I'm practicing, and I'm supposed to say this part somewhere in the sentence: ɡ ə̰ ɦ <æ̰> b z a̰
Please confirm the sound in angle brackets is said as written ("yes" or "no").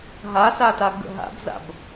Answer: no